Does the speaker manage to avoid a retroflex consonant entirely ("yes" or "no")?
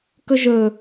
yes